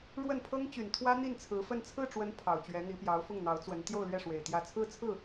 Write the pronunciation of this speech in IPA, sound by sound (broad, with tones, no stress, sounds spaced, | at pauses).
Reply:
ɻ w ə˥˩ n pʰ ɤ˥ ŋ t͡ɕ y˨˩ n t̪ʰ w ä˥ n̪ i˥˩ n t͡sʰ ɹ̩˧˥ f ə˥˧ n t͡sʰ ɹ̩˥˩ ʈ͡ʂ w ə˧˥ n pʰ ɑ˨˩ ʊ̯ t͡ɕ ɥ ɛ˧˥ n̪ i˧˥ p j ɑ˧˥ ʊ̯ f ʊ˥˩ ŋ n̪ ɑ˧˥ ʊ̯ t͡s w ə˧˥ n t̪ j o˥˧ ʊ̯ l ɥ ɛ˥˩ ʂ w e˨˩ ɪ̯ t̪ j ä˧˥ t͡sʰ ɹ̩˥ t͡sʰ ɹ̩˥˩